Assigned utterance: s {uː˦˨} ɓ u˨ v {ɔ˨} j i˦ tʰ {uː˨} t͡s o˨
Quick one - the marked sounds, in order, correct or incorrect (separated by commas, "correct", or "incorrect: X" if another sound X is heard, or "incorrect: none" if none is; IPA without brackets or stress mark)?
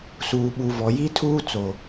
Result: incorrect: uː˨, correct, incorrect: uː˦